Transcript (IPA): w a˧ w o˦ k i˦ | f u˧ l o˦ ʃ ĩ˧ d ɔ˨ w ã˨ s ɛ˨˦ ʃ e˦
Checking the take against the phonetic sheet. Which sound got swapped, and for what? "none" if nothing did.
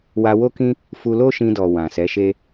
i˦ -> ĩ˦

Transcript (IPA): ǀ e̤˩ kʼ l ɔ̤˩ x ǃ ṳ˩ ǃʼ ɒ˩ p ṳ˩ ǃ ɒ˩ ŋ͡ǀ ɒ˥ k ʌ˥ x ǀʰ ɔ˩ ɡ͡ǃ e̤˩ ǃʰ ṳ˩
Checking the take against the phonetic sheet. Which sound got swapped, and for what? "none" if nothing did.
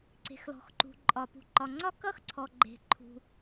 kʼ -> x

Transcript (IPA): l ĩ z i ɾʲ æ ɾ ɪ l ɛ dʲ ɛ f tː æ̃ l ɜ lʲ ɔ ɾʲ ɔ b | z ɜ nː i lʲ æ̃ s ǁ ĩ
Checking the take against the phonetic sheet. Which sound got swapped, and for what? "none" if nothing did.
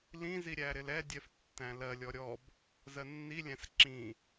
none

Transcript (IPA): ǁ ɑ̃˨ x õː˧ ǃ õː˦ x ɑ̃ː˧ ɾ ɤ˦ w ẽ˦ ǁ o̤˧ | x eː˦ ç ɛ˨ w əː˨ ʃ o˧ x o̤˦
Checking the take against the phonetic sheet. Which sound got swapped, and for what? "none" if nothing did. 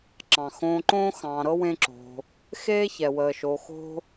none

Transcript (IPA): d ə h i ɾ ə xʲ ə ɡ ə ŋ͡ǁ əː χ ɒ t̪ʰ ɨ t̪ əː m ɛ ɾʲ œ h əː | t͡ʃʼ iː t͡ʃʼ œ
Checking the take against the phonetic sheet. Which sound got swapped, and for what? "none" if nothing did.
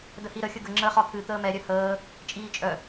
none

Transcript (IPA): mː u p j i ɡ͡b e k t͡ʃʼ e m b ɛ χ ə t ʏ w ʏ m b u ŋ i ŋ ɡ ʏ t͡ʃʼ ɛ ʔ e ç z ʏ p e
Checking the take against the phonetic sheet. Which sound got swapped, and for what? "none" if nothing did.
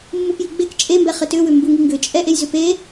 ç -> j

